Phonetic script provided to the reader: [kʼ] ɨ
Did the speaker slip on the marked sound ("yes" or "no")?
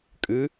no